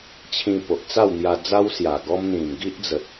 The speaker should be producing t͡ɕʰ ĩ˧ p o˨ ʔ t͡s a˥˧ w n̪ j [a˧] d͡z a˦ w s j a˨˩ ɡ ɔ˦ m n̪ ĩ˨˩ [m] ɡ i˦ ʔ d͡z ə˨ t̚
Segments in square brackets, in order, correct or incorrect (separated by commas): correct, correct